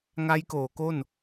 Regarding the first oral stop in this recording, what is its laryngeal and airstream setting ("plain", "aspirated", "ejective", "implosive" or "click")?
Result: plain